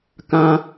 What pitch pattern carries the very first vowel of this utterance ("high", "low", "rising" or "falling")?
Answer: high